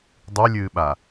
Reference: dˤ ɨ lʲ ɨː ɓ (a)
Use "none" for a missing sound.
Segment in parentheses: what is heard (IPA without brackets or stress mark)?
a